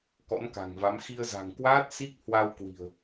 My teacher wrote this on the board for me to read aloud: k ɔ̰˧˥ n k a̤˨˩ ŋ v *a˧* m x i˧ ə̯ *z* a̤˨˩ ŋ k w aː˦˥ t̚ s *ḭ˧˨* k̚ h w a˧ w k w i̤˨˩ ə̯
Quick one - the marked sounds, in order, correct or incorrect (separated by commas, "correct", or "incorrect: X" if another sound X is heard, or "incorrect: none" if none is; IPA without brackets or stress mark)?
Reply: incorrect: a˨˦, correct, incorrect: i˦˥